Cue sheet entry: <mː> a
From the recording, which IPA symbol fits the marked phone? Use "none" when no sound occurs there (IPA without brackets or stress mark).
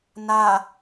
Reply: n